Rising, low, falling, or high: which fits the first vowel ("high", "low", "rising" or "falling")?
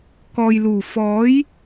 low